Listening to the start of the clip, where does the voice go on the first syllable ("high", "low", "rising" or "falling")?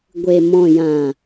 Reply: low